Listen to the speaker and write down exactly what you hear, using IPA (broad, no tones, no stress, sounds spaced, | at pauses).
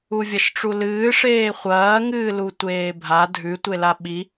u vʲ ɐ ʃ ʈ͡ʂ u l ɨː ʂ eː χʷ ɐː ŋ ɨː l u tʷ eː bʱ a dʱ ʉ tʷ e l a ɓ i